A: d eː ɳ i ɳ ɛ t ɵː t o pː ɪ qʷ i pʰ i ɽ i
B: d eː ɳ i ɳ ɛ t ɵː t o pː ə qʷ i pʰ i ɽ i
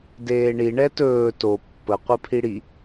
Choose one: B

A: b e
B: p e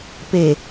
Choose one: B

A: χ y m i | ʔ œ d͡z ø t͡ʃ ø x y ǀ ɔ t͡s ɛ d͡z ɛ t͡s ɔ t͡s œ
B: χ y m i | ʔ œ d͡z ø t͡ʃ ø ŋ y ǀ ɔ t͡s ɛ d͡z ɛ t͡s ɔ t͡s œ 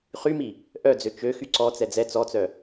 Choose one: A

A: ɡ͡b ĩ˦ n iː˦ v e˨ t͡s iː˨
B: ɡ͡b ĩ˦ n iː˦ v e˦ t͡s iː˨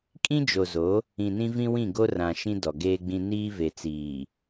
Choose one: A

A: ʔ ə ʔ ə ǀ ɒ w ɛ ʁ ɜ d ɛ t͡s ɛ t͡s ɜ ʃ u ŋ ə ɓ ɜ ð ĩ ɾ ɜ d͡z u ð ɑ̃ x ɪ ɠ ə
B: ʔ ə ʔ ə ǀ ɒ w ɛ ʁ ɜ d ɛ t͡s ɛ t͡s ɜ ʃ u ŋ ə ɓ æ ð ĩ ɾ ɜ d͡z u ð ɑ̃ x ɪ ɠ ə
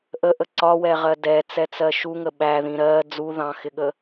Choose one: B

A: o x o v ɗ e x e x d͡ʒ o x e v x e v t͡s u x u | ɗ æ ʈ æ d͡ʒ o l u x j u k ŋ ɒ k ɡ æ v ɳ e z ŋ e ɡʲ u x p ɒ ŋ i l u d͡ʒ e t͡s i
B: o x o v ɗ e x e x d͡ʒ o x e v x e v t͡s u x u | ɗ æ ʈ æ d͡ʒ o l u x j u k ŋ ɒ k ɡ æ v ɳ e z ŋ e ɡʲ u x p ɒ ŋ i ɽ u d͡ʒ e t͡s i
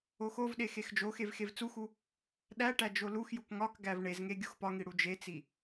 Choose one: B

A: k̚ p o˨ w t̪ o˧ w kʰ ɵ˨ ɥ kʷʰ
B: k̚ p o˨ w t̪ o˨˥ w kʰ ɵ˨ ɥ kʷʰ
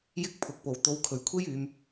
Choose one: A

